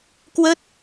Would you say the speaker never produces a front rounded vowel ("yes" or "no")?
yes